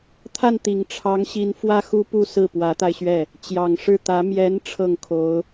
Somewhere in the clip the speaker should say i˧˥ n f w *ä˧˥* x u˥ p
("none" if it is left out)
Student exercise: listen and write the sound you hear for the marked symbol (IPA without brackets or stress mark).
ä˥